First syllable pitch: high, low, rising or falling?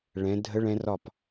rising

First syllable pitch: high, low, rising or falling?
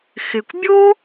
low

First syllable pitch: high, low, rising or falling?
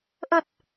low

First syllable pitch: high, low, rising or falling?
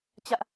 high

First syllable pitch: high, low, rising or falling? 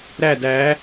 falling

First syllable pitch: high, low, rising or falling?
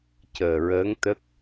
low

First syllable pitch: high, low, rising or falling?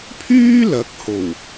high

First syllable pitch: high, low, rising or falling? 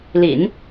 low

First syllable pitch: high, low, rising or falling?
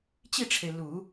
falling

